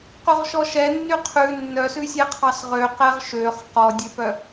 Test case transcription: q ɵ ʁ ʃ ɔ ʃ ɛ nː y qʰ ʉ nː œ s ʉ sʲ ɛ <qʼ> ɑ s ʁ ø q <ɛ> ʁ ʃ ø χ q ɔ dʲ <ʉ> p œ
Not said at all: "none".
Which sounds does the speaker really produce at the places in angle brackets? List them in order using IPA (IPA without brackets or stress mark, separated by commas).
qʰ, ɛ, ø